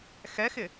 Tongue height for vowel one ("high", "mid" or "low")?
mid